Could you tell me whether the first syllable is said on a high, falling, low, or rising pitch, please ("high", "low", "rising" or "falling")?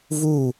falling